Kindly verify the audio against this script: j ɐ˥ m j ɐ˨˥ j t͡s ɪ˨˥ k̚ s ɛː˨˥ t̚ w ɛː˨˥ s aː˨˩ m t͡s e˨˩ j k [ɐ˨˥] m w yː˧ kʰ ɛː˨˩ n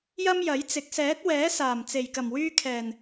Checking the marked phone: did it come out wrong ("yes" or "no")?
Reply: yes